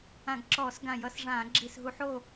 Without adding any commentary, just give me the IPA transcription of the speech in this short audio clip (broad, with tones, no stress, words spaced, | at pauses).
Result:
ã˧˩˧ɡǁɔː˧˩˧s ɡã˧˩˧jʌ˧˩˧sʐãː˧˩˧ ɡ͡ǁi˨˩sɦu˧˩˧ħo˦˨